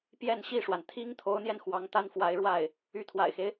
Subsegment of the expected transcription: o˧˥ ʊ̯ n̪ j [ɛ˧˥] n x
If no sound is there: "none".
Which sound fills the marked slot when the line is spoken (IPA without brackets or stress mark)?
ɛ˧